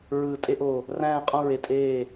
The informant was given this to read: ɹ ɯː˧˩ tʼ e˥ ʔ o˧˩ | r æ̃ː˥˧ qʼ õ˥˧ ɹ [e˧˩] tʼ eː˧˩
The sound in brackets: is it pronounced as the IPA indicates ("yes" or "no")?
yes